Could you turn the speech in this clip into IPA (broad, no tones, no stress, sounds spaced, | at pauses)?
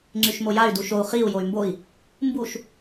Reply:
ŋ͡ǀ y ʃ m o j a y̯ d u ʃ o u̯ χ i u̯ j o y̯ m b o i̯ | m b u ʃ